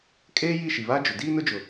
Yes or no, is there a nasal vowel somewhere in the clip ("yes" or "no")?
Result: no